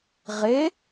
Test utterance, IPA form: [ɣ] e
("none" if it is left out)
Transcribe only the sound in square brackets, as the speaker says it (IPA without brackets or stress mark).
ʁ